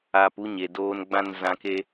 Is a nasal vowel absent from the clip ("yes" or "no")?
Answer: no